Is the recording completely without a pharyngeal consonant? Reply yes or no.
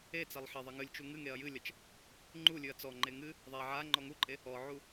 no